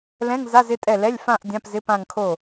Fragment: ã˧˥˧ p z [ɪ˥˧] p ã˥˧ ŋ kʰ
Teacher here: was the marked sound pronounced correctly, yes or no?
no